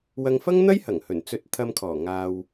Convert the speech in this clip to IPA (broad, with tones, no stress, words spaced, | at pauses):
wɐ˧ŋ fɐ˥ŋn̪ɐ˥jhɐ˨˩ŋ hɵ˨˩nt͡sɵ˧t̚ t̪ʰɐ˧mkʰɔː˨˩ ŋaː˧w